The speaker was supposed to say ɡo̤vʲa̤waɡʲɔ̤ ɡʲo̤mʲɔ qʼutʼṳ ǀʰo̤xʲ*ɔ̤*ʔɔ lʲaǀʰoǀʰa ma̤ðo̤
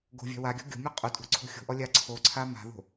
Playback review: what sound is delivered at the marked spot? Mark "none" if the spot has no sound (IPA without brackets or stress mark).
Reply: o̤